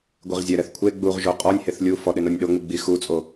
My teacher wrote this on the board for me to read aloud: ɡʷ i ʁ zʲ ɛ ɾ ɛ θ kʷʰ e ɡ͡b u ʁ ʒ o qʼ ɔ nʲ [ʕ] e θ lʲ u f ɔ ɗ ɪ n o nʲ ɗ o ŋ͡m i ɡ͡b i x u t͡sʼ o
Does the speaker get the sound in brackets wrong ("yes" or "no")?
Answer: yes